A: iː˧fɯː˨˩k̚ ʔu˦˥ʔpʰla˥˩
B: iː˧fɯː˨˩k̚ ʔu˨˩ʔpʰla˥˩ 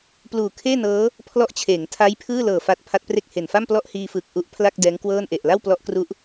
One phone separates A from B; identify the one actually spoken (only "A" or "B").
A